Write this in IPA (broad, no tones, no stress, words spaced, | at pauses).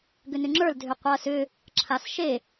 ɡʏnʏŋ͡ǁə˞l dʱʏqʷɐːsʏ | ǁʰasʃe